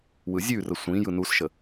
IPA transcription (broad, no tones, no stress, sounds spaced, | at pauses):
w ɯ zʲ ʉ r ə sʷ ĩ j ɯ n u s ʃ ə